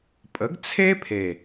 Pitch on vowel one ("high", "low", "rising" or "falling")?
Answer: rising